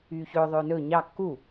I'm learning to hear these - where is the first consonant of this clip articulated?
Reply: palate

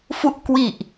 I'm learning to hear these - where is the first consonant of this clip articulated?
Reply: lips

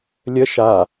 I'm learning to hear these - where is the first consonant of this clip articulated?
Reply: tongue tip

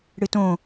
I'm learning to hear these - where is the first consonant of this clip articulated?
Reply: retroflex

